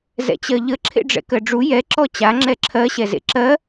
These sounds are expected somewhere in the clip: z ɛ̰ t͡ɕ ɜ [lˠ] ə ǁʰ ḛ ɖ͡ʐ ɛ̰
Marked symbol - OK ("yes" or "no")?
no